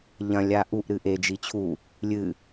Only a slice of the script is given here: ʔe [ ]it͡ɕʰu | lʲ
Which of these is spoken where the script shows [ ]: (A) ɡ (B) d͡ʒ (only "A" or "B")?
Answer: B